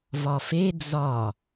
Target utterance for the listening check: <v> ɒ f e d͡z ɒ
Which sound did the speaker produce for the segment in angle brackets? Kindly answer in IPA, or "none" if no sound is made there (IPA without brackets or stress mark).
v